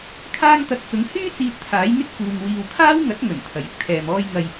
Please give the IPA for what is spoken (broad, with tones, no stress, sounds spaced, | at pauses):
kʰ aː˥ ŋ t̪ ɐ˧ k̚ t͡s ʊ˨˥ ŋ h yː˥ t͡s iː˧ t̚ t̪ʰ aː˨˥ j n̪ ɪ˥ k̚ f uː˨ ŋ w iː˨ w kʰ aː˥ w ŋ ɐ˨˥ t̚ ŋ ɵ˨˩ n t̪ʰ ɐ˨˩ j ɪ˨ k̚ t̪ʰ ɛː˨ m ɔː˧ j ŋ ɐ˨ j